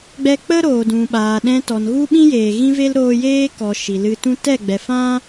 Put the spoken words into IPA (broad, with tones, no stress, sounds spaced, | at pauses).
ɡ͡b ɛ˦ k͡p ə˦ ɾ oː˨ d ũ˨ ɓ aː˨ ɗ ɛ̃˧ t ɔ˨ n ɣ u˦ ɓ ĩ˦ j eː˨ ɣ ĩ˦ v e˦ l ɾ oː˧ j eː˦ k ɔ˨ ʃ i˨ l ɨ˧ t ũ˦ t ɛ˦˨ ɡ͡b ɛ˨ f ã˦